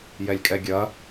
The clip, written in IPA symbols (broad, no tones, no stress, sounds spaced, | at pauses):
j ɛ lʲ kʼ ɛ ɡʲ ɐ